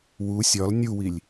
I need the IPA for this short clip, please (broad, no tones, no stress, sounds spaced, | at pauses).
w u sʲ ɒ l nʲ u w i lʲ